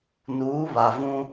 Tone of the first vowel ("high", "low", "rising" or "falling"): rising